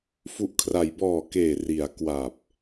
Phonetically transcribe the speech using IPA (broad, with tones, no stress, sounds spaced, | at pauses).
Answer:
f u˨˩ ʔ kʰ r a˩˦ j b ɔː˨˩ k eː˨˩ r i˩˦ a̯ k w a˨˩ p̚